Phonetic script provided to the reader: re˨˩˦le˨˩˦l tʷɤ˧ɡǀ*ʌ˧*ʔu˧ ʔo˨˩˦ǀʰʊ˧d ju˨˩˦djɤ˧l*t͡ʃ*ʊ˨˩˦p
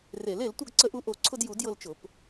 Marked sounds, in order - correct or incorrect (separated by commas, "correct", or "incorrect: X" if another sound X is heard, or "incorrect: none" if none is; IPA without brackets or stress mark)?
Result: incorrect: ə˧, correct